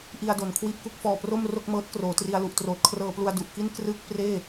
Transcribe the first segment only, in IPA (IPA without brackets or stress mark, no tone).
ʔ